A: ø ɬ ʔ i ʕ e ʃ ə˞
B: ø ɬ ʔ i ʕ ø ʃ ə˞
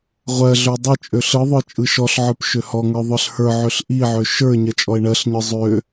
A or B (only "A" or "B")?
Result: B